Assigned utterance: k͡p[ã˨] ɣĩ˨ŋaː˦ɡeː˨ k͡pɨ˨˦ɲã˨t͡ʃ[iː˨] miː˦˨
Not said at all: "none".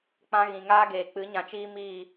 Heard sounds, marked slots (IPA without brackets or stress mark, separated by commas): ã˧, iː˦